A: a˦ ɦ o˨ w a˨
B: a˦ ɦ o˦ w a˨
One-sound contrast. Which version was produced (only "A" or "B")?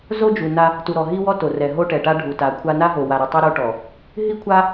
A